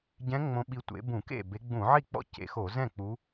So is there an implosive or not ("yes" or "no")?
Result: yes